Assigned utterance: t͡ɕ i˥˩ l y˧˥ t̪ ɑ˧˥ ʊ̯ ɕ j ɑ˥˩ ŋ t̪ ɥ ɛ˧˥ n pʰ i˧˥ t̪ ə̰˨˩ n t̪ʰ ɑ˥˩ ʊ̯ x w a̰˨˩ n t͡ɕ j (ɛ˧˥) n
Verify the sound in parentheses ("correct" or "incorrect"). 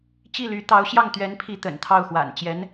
correct